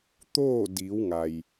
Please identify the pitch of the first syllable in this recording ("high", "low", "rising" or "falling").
falling